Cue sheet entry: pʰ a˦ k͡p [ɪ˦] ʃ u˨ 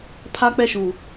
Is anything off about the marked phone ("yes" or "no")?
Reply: yes